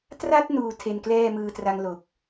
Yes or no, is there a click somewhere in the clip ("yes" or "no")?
no